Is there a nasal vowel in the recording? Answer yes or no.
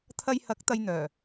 no